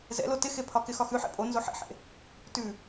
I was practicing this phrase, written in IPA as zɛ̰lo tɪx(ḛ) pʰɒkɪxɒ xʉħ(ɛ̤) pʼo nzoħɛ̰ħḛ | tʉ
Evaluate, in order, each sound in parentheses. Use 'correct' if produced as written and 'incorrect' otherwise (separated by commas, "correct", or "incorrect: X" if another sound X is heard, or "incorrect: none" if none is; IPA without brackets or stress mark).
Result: incorrect: e, incorrect: ɛ̰